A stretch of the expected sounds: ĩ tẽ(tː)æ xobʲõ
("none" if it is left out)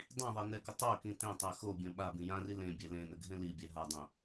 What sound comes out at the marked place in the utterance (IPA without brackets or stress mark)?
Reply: tˤ